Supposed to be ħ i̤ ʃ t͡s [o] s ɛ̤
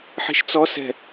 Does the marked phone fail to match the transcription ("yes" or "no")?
yes